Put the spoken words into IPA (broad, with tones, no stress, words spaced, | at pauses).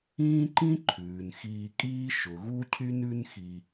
ĩː˦ǃĩ˦ ǃʰʉː˨nxiː˧ kʼiː˦ ʃʊ˨ɣu˦ cʰy˦nʉ˦nxi˧